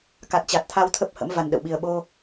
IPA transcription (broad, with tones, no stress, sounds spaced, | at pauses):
k a˨˩ t̚ t͡ɕ a˨˩ t̚ t̪ʰ a˧ w t̪ʰ ə˦˥ p̚ h ə̰˧˥ m v a˨˩ n ɗ ə̰˧˨ w ɓ i˨˩ ə̯ ɓ o˧